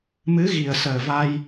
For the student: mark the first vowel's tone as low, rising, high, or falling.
rising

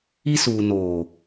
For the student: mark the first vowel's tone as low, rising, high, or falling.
high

